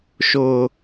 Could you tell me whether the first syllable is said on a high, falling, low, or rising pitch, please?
high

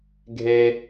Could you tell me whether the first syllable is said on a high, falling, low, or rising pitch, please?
high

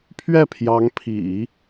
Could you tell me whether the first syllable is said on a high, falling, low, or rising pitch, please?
falling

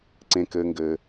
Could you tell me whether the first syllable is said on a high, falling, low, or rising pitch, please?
low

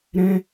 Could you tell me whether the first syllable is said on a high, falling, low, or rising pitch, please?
high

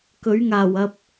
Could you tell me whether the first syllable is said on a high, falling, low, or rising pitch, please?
rising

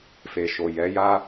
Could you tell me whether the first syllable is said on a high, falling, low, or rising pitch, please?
low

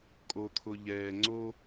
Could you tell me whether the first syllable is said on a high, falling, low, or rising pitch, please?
low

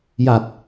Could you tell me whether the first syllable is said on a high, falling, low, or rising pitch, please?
low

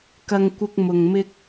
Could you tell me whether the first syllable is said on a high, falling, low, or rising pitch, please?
low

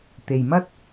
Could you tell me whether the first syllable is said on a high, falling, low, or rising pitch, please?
low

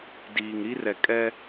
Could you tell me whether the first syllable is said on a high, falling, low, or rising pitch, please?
low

